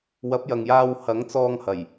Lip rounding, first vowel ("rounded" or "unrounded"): unrounded